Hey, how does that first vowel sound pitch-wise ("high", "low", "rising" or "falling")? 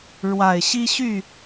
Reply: low